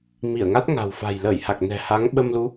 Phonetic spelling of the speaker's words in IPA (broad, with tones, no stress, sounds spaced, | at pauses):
m i˧˩ ə̯ ŋ a˦˥ t̚ ŋ a̤˨˩ w f a̤˨˩ j l əː˧˩ j h a˨˩ k̚ n ɛ̤˨˩ h a˨˦ ŋ ɓ ə˧ m l u˨˦